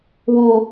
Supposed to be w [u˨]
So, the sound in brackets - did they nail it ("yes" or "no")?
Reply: yes